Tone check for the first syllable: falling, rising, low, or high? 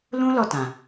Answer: high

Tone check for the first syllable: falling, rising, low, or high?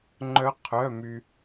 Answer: rising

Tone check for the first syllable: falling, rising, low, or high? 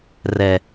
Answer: low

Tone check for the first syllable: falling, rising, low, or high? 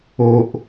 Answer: low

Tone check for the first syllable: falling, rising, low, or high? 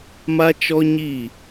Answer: high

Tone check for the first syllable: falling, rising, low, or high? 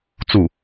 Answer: falling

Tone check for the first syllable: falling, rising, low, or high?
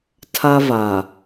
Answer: high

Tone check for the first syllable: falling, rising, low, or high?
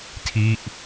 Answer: falling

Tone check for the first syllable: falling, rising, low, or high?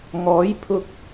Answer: rising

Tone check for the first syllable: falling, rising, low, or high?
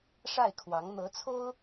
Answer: falling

